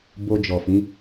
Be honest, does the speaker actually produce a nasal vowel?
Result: yes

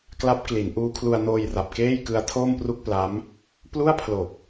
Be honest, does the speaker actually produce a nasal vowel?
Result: no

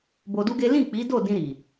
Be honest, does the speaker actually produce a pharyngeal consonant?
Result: no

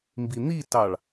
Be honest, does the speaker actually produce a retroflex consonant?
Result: yes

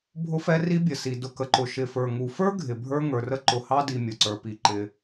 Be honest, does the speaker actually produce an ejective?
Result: no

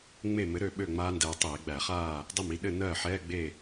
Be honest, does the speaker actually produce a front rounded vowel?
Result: yes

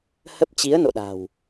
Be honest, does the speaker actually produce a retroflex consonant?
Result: no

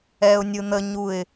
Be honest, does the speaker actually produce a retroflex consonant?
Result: no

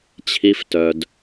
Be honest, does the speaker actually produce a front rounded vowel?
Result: yes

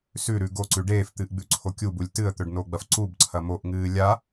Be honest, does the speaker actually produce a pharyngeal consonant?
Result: no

